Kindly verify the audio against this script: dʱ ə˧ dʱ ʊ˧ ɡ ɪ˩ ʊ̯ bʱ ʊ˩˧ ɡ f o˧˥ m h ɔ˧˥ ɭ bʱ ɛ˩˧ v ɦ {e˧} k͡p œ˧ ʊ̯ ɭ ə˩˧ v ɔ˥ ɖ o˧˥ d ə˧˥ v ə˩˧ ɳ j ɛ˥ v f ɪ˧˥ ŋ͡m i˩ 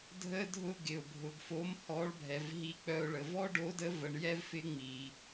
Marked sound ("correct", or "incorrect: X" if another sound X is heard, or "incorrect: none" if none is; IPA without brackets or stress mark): incorrect: i˧